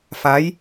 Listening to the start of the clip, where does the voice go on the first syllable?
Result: rising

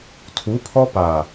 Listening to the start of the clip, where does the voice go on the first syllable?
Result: rising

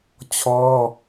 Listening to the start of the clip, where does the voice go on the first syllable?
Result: high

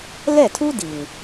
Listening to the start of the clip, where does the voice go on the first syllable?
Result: falling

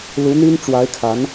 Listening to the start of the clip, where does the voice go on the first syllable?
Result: rising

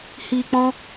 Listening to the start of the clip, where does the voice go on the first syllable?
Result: low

